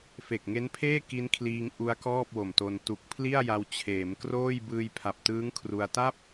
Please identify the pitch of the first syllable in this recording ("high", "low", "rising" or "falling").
low